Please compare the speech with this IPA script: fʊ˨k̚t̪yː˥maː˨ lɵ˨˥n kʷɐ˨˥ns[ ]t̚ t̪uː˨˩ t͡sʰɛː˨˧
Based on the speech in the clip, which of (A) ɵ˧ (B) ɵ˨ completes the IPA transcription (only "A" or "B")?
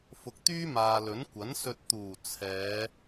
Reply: A